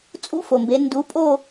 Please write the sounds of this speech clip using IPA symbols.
t͡sʼṵ˧˥˧fo˩mbe˩˧ ndu˩˥pʼo˦˨

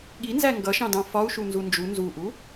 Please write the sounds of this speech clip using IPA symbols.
ɠinzæ ŋɡʌʃɑ̃dɑ̃ fɒu̯ʃunzu nd͡ʒu nzuʔu

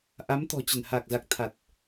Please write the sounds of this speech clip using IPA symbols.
ʔa˨˦mt̪ɔ̤˨˩ t͡ɕə˧˩nha˨˩k̚za˨˩k̚ t̪ʰa˨˩t̚

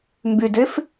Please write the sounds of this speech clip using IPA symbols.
mbydef

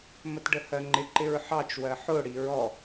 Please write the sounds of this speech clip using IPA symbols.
mətɖəhɜŋ͡ǃɪ ǃɪɹħɑt͡ʃ wɜħʊ ɽiɹɔ

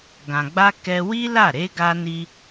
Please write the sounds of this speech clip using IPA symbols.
ɡã˨ɡ͡ba˧ kɛ˧wi˦la˦˨ ɾe˧ɡa˧ ni˦

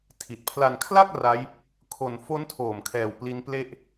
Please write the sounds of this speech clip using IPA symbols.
tʰi˨˩t̚pʰla˧n kʰla˥˩k̚ ra˦˥j | kʰo˧n fo˦˥ntʰoː˨˩mkʰɛː˨˩w pli˦˥nple˥˩ʔ

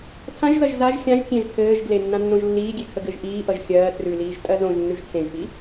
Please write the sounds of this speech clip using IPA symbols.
tʰãʒzʌʒ zaʒ xʲãʒ kʲẽʒ tʰɘːʒɡle nːãnːõʒlːiːɡʲe kʰəɡɘʒʔiːʔʌʒ xʲɜː trʉliːʒ tʼɜzõʒnːʉʒ tʰẽʒpi

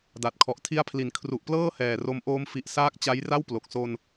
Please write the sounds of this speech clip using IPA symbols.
da˨˩t̚kʰɔ˨˩ʔ tʰi˦˥a̯pʰli˩˦n kʰru˨˩ʔplɤː˥˩ hɛː˨˩ro˦˥m ʔoː˧mfi˨˩ʔsaː˦˥k̚ t͡ɕa˦˥jra˥˩wplo˨˩k̚ so˧n

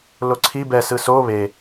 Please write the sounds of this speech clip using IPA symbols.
loǀʰi bɛsɯ so βe

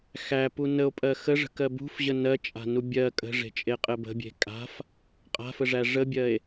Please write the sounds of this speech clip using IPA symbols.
xæpu nəo̯pʼɜ xəʐə̤kɜ bṳfʑə nɜt͡ʃʼa̤nu bʲɜ kʼə̤ʐe̤t͡ʃʼeqʼɘ bə̤bʲe̤ kʼa̤f | qʼa̤fəʐæ ʐəbʲɜe̯

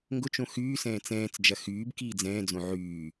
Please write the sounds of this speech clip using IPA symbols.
ŋɡʊt͡ʃõ xyːsɛ̃ː t͡sɛ̃ːt͡sd͡ʒɐ xyːb kiːd͡zɛ̃ːd͡zõ ʕyː

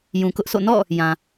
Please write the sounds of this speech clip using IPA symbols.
jũ˨kʊ˦ʔsʰo̰˦˨ nɔ̰˦˨ | jã˨

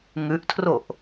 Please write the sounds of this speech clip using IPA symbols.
ŋʉʔtʰroʔ

